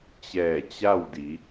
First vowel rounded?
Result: no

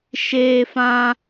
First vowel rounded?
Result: no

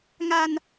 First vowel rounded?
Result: no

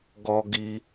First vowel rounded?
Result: yes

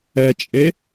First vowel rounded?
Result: no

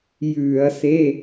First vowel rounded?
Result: yes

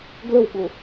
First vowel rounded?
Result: no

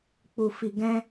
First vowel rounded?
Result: yes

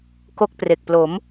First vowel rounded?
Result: yes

